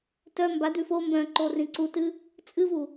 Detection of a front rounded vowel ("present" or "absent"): present